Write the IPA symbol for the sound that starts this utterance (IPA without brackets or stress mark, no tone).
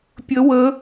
pʲ